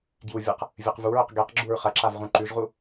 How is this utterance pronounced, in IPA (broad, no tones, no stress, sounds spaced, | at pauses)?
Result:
ɡ j u vʲ ɐ q | vʲ ɨ q v u ɹ ɵ q ɡ e q ɡ͡ǁ u ɹ χ ɐ ǁ a v ʁ ũ ǃ ʉ ʒ ʁ u